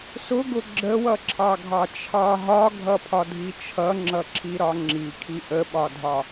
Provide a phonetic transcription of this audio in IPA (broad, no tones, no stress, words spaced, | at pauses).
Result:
sʊɡʊ ɡ͡ǁəwʌǁʰɑɡʱɑ t͡ʃʰɑ ɦɒɡʱʌpʰɒdʱi t͡ʃʰʌŋ͡ǁʌǁʰiɾɒ ŋ͡ǁikʰi ʔəɓɒdʱɒ